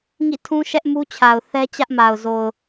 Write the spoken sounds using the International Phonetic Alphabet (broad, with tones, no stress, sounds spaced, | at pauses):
ŋ ḭ˦˨ tʰ ũ˦ ʃ ɛ˦ ʔ m u˦ t͡ɕʰ a˨ ʊ̯ θ ɛ˦ t͡ɕ ä˦ ʔ m a˨ ʊ̯ z o˨ ʊ̯